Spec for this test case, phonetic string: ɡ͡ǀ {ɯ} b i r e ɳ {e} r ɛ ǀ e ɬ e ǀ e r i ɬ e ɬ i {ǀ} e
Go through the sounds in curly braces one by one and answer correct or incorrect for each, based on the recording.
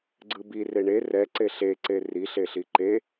correct, correct, incorrect

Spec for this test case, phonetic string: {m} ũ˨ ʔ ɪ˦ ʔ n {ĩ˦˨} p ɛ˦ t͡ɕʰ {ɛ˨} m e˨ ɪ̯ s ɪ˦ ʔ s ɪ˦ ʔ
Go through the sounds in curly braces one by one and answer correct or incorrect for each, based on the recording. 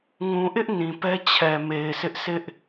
incorrect, incorrect, correct

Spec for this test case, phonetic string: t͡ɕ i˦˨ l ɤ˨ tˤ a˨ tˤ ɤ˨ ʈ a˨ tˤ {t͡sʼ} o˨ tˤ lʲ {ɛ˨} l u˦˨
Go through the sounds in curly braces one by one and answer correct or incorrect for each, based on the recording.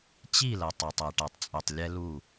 correct, incorrect

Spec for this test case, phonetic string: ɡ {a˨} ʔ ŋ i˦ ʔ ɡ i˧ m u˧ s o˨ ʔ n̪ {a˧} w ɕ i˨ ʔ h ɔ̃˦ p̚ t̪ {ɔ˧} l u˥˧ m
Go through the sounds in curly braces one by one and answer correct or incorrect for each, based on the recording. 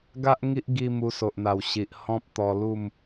incorrect, incorrect, correct

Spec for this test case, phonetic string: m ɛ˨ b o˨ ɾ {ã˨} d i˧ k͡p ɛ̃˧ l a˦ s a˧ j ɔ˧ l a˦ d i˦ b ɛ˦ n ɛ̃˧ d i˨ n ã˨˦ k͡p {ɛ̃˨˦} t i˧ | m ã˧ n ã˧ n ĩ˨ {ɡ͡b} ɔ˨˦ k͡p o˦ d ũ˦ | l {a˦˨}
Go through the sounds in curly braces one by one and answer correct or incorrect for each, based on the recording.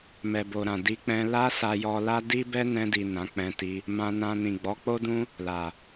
correct, incorrect, correct, incorrect

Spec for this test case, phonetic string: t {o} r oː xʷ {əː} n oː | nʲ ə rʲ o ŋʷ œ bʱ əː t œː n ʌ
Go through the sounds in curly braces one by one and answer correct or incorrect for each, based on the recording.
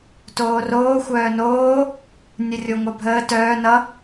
incorrect, incorrect

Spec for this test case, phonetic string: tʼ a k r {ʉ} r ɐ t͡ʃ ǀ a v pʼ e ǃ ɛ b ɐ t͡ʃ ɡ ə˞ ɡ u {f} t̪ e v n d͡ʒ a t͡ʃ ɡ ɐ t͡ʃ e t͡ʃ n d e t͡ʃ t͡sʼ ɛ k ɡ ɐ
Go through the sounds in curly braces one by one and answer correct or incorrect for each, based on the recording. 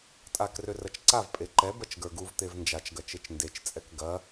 incorrect, incorrect

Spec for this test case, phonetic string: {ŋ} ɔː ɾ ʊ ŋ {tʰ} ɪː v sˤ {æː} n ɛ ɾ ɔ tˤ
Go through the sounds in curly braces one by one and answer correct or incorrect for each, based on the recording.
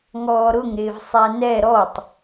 correct, incorrect, incorrect

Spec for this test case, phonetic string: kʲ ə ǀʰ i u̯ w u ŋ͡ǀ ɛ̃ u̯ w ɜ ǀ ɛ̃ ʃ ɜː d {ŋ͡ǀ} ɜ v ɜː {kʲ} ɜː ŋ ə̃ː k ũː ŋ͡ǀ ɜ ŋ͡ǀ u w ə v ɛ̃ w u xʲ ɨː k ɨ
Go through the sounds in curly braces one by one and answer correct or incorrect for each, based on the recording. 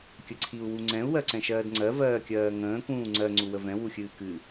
correct, correct

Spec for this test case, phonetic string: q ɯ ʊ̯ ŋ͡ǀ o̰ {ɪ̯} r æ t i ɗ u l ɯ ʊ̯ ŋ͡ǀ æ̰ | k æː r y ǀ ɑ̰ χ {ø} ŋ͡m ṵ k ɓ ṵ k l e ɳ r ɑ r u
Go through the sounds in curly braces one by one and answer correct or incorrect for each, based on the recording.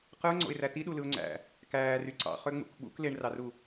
correct, correct

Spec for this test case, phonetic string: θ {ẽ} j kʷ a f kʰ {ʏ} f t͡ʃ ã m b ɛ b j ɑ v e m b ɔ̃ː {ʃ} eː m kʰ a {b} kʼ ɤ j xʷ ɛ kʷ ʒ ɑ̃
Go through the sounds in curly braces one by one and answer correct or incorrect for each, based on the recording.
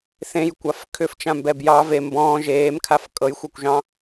correct, correct, incorrect, incorrect

